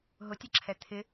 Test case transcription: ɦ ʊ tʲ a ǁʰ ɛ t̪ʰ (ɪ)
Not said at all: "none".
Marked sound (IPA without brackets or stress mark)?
ɪ